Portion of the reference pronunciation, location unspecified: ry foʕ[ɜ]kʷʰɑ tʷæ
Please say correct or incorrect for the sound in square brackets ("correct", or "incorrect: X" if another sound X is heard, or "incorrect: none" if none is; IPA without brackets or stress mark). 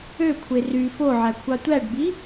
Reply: incorrect: æ